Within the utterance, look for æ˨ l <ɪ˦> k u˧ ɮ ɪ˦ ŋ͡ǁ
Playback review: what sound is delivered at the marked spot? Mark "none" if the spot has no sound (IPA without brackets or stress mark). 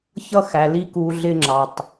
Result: i˦